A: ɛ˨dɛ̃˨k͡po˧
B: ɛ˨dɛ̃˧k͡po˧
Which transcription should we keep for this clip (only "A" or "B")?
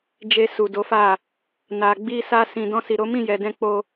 B